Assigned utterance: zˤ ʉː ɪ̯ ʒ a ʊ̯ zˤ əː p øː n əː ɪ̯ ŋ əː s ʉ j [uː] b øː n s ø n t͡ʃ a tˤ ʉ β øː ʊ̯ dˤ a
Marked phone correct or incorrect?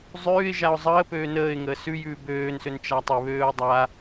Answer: incorrect